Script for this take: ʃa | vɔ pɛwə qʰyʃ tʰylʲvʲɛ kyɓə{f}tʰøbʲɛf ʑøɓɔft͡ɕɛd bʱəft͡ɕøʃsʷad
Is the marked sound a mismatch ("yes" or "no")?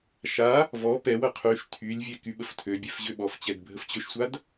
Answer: no